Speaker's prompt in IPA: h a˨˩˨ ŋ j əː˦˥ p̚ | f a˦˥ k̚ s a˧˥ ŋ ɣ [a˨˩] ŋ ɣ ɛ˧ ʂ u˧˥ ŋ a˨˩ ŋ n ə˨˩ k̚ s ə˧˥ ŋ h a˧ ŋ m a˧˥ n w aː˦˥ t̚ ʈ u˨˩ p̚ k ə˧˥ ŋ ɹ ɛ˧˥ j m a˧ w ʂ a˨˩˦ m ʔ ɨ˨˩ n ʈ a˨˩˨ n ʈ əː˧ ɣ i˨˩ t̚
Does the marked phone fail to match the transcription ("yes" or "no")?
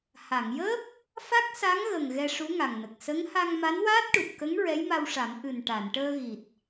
yes